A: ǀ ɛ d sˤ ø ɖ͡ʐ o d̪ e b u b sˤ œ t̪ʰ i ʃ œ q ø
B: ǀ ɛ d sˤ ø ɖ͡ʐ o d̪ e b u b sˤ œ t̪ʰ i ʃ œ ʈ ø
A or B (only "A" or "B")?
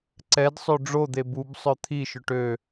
B